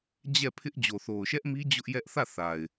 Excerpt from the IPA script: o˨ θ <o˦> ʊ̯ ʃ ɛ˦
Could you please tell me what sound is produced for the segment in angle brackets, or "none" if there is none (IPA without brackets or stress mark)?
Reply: o˨